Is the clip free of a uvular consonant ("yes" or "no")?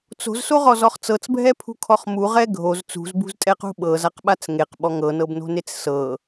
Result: no